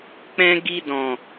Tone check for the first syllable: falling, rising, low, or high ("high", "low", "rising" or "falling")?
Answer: high